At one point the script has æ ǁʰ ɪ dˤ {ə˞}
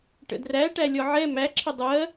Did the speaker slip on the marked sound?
yes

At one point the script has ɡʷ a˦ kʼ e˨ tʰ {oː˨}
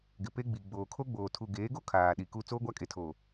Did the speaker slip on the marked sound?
no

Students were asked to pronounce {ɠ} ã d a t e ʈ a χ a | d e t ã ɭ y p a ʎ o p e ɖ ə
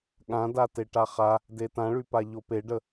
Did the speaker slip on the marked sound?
no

